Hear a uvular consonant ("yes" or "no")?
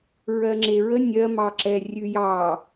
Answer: no